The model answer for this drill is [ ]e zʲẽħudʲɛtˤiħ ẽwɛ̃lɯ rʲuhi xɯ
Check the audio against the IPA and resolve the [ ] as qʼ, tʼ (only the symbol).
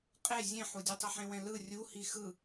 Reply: qʼ